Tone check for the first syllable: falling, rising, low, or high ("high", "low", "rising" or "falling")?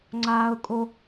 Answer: high